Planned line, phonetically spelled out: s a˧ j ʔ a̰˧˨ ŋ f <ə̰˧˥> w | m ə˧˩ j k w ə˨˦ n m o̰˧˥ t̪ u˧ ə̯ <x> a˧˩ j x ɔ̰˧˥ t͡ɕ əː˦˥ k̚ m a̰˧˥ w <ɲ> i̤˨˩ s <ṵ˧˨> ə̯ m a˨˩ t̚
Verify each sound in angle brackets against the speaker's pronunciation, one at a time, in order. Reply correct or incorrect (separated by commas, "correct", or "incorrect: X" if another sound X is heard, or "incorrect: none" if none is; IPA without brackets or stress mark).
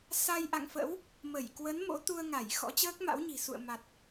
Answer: correct, incorrect: ŋ, correct, correct